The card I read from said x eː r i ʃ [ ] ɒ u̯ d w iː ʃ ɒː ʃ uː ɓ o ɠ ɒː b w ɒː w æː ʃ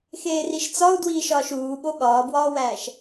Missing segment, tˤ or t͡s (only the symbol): t͡s